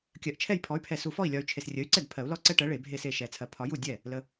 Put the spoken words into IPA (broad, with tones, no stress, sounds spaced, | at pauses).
kʲ ɜ˨ ʔ t͡ʃʰ ɛ˥˩ j pʰ ɔ˩˥ y̯ pʰ ɛ˨ s u˨ f ɔ˥˩ i̯ lʲ ɒ˨ y̯ t͡ʃʰ e˨ s rʲ ə˩˥ y̯ ǀ ɛ˥˩ d pʰ ɜ˨˩˦ u̯ l ɔ˦ ǀ ɛ˦ ʈ ɜ˩˥ ɭ e˨˩˦ bʱ e˥˩ s e˥˩ ʃ ɛ˨˩˦ t͡sʰ ɜ˨˩˦ pʰ ɒ˨˩˦ j u˥˩ dʲ ɛ˥˩ | l ə˨